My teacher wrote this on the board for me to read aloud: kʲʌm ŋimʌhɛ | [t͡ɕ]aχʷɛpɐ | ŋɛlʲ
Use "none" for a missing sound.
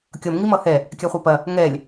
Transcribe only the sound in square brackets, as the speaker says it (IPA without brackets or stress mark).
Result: kʲ